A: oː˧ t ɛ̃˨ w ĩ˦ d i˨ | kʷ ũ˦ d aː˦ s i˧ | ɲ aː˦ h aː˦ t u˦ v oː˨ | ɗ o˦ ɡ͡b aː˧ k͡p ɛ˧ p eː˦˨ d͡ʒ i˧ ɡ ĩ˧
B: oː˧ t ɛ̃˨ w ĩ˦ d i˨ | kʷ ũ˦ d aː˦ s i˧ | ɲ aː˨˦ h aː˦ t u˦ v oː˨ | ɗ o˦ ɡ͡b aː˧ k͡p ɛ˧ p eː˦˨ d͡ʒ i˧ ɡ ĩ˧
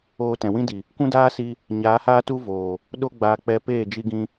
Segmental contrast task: B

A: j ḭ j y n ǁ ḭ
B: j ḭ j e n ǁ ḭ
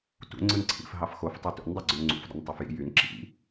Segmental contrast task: A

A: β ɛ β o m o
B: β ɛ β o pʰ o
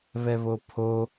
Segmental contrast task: B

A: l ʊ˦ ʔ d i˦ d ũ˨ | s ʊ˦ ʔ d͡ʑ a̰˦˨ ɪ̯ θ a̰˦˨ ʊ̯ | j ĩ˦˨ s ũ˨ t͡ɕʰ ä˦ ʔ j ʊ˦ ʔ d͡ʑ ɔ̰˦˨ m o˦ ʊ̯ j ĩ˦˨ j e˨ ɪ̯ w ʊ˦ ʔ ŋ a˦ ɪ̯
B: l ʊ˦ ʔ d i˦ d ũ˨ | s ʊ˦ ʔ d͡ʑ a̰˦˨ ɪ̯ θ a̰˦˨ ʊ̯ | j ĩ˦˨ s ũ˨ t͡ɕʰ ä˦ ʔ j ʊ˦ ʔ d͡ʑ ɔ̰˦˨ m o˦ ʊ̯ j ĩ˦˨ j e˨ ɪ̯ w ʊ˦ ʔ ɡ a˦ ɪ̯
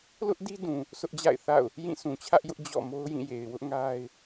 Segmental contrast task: A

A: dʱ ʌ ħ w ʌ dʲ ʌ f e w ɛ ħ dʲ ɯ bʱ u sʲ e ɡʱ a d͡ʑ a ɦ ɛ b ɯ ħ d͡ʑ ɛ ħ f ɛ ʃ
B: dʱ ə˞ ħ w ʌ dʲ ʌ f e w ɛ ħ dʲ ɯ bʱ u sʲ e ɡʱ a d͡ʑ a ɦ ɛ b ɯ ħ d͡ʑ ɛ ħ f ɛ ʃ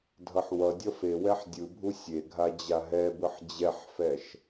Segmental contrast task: A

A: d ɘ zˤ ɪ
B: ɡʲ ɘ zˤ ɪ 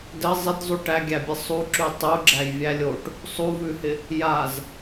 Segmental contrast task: A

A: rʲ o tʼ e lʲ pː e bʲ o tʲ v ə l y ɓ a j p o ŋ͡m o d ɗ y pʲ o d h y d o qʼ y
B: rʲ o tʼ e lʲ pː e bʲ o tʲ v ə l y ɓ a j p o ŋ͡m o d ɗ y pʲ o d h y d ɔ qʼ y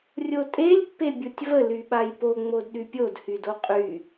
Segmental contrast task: A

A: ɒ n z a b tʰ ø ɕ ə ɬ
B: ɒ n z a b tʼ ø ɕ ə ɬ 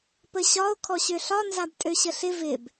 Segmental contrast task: B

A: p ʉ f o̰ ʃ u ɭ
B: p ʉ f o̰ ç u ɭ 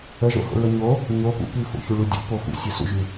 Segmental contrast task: B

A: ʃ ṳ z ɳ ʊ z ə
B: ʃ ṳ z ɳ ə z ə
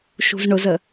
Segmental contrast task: A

